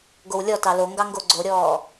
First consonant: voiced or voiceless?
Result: voiced